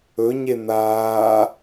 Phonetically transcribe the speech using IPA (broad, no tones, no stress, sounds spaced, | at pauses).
ɵ ɲ e n̪ aː